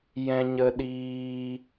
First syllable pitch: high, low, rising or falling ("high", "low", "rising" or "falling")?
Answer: high